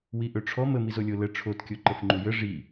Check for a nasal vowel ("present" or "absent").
absent